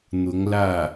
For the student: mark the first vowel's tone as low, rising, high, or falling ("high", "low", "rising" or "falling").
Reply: rising